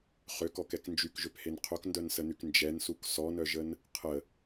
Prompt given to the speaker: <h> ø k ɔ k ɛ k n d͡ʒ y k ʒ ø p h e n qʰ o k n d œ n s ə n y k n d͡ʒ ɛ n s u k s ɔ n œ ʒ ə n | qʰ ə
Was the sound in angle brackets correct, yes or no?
no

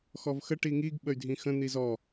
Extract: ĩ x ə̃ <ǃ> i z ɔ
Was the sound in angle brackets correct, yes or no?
no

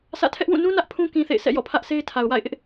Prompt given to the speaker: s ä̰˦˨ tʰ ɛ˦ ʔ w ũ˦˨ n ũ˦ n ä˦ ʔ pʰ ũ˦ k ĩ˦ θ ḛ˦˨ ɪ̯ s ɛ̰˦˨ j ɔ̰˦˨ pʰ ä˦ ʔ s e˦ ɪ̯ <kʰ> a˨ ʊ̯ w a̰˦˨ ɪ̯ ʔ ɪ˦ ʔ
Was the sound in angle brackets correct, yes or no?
no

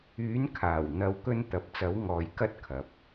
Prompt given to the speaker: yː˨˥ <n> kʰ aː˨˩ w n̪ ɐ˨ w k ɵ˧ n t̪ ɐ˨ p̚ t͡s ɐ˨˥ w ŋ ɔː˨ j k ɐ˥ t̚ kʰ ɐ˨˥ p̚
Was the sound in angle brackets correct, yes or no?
yes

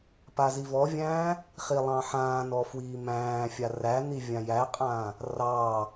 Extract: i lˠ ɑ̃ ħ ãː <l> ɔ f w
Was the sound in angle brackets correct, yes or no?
no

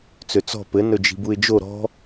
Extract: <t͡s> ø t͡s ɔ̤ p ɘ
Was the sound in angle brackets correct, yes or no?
yes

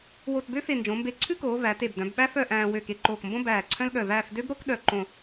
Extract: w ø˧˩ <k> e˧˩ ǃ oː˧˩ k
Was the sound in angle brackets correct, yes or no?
yes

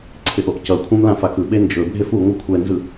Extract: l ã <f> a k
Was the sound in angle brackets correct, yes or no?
yes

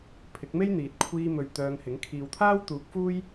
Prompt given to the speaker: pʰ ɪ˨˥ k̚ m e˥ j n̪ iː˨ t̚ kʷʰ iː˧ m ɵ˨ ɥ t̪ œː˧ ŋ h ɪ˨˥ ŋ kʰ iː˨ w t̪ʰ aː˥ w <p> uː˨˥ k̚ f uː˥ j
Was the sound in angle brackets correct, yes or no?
no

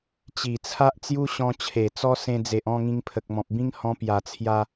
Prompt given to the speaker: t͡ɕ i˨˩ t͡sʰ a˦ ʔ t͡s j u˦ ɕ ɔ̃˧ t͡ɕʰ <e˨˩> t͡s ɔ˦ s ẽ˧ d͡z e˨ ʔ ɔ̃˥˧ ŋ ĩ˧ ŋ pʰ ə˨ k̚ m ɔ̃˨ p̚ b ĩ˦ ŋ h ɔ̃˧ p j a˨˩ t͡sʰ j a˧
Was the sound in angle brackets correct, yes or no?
yes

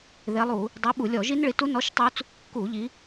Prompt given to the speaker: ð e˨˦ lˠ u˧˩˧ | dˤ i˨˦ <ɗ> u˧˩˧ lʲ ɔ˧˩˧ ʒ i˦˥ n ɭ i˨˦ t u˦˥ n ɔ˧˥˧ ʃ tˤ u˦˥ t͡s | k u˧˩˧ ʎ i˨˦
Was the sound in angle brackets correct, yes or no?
no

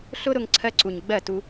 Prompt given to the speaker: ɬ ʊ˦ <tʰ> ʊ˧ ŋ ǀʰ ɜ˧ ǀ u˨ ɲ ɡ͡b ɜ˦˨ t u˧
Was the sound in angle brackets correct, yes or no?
no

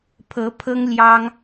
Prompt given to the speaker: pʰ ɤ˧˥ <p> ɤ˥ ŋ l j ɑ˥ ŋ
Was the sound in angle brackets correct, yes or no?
no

